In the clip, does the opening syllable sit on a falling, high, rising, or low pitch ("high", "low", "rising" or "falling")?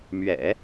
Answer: low